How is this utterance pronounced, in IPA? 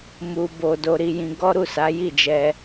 m u˨ b o˨ d o˧ ɾ i˧ j ĩ˧ ɡ ɔ˦ ɾ u˦˨ s a˨˦ j i˦˨ d͡ʒ ɛ˧

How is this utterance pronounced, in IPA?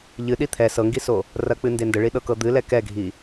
ʎ ɨ ɗ i t̪ʰ ɛ s ɤ ŋ ɡ i s o | r ɐ k͡p ɨ n d e n d ə ɭ i ɗ ɤ k ɤ d̪ ɨ l ɛ k ɛ ɡʱ i

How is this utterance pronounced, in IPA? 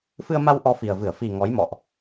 f ɨ˧ ə̯ m a˧ w ʔ ɔ˧ f i˨˩ ə̯ v ɨ˧˩ ə̯ f i˨˩ ŋ ɔ˨˦ j m ɔ̰˧˨ ʔ

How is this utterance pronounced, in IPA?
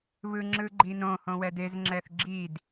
β ɯ ŋ͡ǁ ɯ ɡ͡ǃ i n õ h õ w ɛ d e z ŋ͡ǁ ɛ θ ɡ͡ǁ i d

